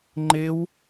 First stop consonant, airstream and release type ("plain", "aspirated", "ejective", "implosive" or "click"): click